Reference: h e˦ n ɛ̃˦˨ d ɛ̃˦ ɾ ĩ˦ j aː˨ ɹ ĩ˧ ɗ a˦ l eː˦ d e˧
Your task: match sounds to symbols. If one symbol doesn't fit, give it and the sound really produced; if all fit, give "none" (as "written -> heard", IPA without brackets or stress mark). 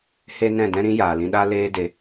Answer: ɹ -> l